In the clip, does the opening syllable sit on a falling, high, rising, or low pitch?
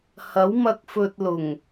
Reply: rising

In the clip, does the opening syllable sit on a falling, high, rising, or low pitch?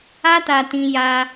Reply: high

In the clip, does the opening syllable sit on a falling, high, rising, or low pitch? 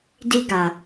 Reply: high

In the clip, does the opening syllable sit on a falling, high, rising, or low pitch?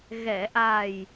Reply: low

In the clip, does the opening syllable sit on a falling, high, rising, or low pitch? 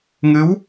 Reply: rising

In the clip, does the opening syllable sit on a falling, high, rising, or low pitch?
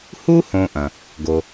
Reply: high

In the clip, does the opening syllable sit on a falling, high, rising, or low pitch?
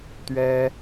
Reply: high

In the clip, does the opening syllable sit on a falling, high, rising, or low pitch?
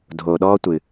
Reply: low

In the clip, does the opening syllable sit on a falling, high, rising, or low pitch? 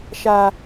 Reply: low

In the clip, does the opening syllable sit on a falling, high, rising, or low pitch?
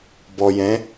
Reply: low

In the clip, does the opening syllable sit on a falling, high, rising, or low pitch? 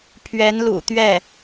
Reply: rising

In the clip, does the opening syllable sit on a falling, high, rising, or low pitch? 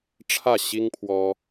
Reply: falling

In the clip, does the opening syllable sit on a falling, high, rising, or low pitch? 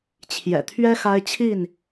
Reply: low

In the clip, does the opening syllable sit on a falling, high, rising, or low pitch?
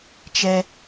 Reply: high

